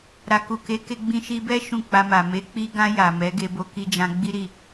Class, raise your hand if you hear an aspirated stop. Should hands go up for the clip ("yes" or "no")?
no